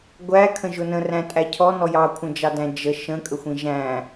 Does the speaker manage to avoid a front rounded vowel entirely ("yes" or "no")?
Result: yes